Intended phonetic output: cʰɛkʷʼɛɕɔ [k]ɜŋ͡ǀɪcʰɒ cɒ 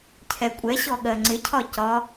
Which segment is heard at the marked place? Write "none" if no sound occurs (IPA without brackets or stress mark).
ɠ